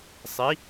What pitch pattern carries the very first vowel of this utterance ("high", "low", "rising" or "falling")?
rising